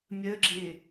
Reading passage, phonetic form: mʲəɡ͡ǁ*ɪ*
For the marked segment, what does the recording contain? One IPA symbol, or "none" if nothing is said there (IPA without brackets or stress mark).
ɪ